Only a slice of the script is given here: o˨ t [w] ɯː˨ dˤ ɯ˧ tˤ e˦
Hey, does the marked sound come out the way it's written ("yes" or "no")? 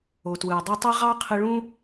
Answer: yes